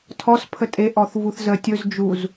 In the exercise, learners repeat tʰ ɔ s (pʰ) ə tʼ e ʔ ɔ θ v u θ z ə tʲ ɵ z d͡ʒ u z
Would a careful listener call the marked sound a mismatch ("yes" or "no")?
no